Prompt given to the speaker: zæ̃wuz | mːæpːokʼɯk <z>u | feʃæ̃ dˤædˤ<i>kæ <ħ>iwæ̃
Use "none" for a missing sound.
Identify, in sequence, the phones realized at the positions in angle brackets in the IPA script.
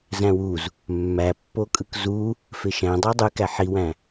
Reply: z, y, ħ

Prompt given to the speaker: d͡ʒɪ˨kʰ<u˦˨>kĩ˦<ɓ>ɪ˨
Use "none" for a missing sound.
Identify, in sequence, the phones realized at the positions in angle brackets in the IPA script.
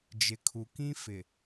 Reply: u˨, f

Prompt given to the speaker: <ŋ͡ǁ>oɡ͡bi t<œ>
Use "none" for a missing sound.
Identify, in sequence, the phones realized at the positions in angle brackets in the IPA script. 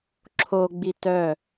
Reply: ǁʰ, œ

